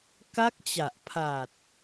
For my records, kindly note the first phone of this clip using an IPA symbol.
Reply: k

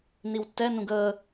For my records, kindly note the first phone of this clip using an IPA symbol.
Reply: n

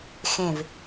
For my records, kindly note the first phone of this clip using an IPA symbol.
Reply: x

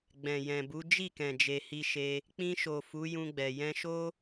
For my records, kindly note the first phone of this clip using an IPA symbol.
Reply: ɡ͡b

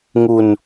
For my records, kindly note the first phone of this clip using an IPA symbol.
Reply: ŋ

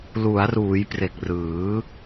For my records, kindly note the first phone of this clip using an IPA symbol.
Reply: l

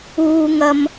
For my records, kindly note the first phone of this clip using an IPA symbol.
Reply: uː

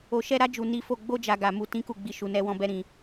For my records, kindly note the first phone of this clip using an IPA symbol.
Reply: o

